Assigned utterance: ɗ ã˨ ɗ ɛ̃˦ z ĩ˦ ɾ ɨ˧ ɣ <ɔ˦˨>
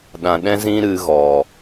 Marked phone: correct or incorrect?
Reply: incorrect